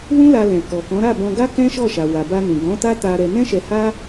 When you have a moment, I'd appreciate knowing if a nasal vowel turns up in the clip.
yes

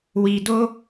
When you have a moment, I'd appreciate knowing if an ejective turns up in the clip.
no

